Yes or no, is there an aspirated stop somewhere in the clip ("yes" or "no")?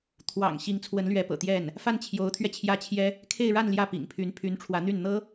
yes